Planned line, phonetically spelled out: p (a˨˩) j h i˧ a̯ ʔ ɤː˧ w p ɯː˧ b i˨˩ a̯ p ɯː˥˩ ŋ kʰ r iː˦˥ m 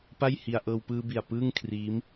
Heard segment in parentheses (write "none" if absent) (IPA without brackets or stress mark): a˥˩